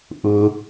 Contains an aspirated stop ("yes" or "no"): no